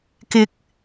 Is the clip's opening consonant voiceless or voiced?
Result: voiceless